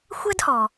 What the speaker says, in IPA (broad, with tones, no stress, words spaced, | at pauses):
xʷɛ˥dhɔ˩